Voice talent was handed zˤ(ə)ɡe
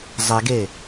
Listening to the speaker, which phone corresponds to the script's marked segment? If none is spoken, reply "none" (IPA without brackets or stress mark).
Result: ɛ